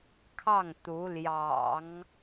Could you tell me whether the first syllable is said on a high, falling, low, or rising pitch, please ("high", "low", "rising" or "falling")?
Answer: falling